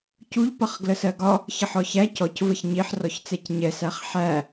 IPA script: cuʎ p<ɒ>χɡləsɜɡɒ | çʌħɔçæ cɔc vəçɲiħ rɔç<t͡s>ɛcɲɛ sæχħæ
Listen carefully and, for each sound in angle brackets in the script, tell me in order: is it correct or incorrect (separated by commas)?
incorrect, correct